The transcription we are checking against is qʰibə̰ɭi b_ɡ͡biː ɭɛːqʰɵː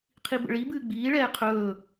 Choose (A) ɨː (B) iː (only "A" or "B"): A